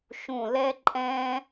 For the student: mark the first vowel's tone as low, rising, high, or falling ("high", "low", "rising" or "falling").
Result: low